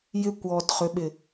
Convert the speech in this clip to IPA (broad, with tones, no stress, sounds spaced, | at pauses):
j ɪ˦ kʷ ɔ˨ d χ ʏ˨˦ ɓ ɪ˨